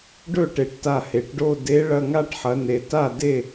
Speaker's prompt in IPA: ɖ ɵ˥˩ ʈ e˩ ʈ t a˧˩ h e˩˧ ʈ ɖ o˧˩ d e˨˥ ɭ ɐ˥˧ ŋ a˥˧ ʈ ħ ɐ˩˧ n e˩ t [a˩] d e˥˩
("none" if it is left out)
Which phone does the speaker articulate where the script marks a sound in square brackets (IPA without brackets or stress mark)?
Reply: a˥˩